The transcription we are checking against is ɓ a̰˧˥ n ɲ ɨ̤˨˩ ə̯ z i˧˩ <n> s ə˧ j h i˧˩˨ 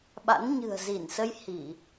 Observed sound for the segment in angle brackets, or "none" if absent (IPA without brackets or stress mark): n